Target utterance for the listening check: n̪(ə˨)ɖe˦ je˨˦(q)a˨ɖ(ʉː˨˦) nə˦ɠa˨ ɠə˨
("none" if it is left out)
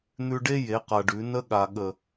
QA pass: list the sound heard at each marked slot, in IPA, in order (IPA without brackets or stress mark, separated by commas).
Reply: ʉ˨, q, ʉ˨˦